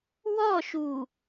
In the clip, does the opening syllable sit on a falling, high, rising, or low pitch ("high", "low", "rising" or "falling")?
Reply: falling